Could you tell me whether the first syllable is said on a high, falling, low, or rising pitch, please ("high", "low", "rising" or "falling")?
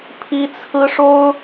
high